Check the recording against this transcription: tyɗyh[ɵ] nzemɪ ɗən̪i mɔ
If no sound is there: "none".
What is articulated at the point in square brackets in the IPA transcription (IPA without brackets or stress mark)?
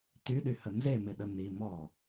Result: ə